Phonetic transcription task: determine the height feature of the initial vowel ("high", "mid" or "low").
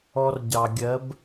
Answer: mid